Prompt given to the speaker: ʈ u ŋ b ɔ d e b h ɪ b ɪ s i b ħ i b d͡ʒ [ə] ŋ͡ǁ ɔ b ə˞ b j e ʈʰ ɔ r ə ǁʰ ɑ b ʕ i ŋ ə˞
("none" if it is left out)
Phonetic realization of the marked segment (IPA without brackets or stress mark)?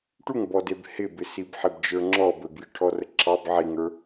ə˞